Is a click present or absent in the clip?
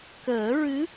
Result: absent